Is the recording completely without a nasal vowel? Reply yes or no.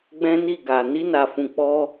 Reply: no